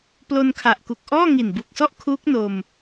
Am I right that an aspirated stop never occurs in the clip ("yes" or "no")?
no